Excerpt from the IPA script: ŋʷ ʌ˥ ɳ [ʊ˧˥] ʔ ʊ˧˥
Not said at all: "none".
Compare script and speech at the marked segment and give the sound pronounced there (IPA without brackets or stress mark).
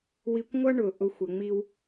ʊ˩